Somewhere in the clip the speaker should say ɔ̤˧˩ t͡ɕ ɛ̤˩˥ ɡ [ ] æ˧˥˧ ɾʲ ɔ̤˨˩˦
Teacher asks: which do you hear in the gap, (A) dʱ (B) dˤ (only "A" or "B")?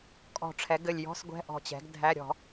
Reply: A